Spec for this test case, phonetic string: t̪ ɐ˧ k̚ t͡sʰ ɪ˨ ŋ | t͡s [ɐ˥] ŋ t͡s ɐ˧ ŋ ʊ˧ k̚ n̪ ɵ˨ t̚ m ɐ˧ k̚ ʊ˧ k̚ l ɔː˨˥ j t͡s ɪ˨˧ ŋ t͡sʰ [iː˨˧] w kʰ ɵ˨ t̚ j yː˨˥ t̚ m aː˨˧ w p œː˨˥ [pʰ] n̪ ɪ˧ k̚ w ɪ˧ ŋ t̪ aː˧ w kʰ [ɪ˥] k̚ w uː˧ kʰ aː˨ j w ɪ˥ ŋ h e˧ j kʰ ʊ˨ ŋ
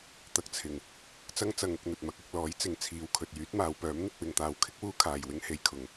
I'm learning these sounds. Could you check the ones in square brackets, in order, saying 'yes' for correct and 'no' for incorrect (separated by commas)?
yes, yes, no, yes